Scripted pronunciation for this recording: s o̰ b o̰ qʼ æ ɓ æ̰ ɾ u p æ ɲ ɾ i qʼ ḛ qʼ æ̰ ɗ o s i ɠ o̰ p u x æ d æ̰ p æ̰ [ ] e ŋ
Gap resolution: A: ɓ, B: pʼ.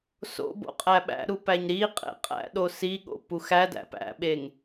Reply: A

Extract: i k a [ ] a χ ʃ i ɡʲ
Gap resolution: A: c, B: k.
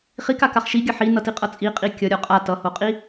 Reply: B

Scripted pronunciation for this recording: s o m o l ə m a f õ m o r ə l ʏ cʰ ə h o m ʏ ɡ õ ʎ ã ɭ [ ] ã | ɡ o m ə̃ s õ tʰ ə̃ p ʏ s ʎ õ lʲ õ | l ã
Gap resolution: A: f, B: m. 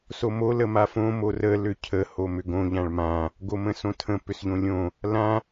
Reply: B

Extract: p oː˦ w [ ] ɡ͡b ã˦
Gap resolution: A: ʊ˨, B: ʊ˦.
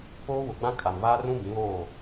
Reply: A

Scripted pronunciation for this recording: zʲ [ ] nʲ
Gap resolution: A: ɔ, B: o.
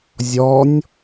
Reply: A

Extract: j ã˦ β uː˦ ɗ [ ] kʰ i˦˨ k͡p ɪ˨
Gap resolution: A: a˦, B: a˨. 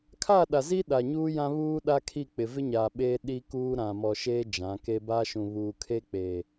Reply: A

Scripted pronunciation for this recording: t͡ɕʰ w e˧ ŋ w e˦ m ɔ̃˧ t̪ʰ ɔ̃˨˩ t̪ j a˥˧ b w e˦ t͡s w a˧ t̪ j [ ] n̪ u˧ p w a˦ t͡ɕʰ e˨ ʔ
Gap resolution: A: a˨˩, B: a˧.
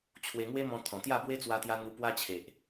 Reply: B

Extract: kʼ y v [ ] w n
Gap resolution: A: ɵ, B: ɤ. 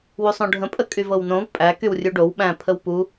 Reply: B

